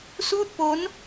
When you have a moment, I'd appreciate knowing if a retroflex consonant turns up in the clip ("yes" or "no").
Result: no